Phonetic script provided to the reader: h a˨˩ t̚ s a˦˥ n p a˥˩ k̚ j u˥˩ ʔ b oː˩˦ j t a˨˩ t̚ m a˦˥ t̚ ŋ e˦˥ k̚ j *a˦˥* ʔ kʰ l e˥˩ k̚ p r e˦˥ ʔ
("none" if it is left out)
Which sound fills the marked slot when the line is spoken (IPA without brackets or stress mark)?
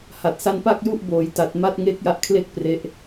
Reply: a˦˥